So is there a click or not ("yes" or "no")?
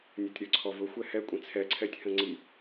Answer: yes